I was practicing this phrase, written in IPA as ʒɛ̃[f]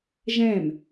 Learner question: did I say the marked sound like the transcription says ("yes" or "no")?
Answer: no